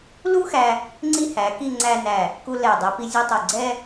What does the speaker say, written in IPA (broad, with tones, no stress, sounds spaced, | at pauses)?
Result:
l u˥ x æ˧ | ŋ͡ǀ i˥ h æ˩˧ k i˥˧ ŋ͡ǀ æ˧ n æ˧˩ | k u˧ l ɛ˧˩ dˤ ɛ˧ p i˧ zʲ u˧ tˤ u˧˩ ɡ͡ǀ ɛ˥